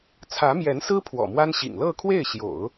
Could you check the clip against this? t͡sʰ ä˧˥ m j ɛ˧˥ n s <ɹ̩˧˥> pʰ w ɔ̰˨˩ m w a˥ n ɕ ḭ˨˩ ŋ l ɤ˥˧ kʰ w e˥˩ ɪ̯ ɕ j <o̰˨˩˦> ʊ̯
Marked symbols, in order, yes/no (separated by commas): no, yes